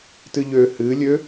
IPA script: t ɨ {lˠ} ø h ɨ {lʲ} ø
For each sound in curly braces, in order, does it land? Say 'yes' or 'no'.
no, yes

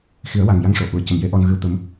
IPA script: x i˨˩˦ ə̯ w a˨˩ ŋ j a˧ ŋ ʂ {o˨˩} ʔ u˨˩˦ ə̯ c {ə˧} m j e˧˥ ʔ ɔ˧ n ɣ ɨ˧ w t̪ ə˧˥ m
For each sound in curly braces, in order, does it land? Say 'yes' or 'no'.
yes, no

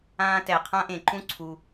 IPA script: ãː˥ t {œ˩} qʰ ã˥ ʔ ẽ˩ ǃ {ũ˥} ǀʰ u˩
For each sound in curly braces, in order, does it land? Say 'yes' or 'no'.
no, yes

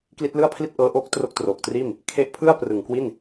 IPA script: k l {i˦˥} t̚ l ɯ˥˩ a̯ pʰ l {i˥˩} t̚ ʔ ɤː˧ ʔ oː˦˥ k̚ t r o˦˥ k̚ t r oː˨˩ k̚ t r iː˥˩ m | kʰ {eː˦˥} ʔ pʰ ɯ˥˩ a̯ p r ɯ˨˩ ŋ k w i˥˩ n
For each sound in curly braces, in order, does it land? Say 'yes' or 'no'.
yes, yes, no

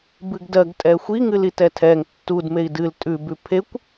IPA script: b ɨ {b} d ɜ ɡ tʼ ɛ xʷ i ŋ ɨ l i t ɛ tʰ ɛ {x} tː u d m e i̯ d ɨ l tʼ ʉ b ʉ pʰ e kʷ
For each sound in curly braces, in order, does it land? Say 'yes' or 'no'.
no, no

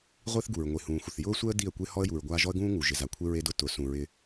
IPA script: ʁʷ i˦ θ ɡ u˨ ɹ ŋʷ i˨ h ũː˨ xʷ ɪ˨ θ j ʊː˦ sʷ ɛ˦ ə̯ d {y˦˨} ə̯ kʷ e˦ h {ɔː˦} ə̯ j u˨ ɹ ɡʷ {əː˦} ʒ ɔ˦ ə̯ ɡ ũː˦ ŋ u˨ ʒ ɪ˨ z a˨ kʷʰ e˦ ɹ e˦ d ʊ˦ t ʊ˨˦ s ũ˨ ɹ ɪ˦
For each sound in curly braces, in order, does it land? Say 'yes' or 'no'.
no, no, no

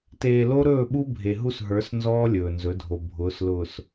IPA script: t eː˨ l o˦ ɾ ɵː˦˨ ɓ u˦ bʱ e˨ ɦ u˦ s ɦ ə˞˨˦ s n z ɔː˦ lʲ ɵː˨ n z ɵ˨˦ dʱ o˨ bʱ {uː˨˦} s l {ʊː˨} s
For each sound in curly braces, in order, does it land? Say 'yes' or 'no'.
no, yes

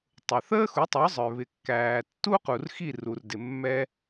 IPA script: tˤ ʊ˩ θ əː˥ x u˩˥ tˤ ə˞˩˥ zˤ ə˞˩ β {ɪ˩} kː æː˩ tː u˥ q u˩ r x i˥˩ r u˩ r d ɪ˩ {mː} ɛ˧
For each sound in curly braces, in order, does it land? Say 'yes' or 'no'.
yes, yes

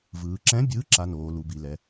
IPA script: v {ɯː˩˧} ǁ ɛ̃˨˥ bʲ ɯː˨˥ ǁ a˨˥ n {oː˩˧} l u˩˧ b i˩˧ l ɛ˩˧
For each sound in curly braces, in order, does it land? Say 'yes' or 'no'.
yes, yes

